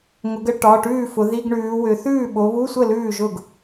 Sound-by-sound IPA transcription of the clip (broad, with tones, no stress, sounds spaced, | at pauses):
ŋ ʊ˩˧ ɡ ə˧˥˧ ʈ ɒ˩˧˩ ʈ ʉː˥˩ f ʊ˩˧ ð i˧˥˧ ɡ ɳ ʉː˩˧ w ʏ˩˧ θ ʉː˥˩ ɓ o˩˧ β u˧˥˧ sʷ ə˥˩ l ʉː˥˩ ʒ ʊ˥˩ ɡ